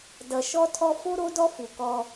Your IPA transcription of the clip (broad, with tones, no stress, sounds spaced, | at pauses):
d ʌ˨ ʃ ɔ˦ tʰ ɔ˦ f o˦ ɾ o˦ d ɔ˦ f u˨ k ɔ˦